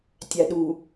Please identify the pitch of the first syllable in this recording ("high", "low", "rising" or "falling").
low